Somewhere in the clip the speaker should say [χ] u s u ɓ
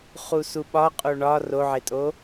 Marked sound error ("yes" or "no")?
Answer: no